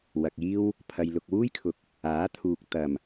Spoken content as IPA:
w ɐ˨ k̚ iː˥ w | pʰ ɐ˨ j l ʊ˨ k̚ w uː˥ j kʰ ʊ˨ k̚ | aː˨˥ t̪ʰ uː˨ k̚ t̪ ɐ˨˩ m

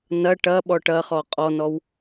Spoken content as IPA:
n ɐ ʈ ɐ ɓ ɔ ʈ ɐ χ ɔ qʼ ɔ n ɔ w

